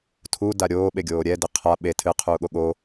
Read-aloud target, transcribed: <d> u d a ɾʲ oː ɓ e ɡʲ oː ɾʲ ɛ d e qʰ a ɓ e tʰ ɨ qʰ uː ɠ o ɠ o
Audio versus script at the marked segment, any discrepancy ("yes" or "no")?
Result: yes